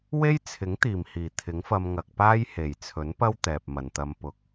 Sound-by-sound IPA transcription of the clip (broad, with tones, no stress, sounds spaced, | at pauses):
w e˥ j t͡sʰ ɪ˨˥ ŋ t̪ iː˨˩ m h iː˨˩ t̪ʰ ɪ˨˥ ŋ f ɐ˧ m ŋ ɐ˨ k̚ p aː˥ j h e˨˩ j t͡sʰ ɵ˨˥ n p ɐ˥ w t̪ ɛː˨ p̚ m ɐ˨ n t̪ ɐ˧ m p ʊ˨˥ k̚